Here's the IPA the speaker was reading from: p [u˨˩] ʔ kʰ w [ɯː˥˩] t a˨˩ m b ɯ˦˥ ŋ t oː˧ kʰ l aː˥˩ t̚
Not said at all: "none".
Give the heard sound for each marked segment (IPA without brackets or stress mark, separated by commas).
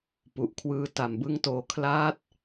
u˨˩, ɯː˧